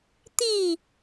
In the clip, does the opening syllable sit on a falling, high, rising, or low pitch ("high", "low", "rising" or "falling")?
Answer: falling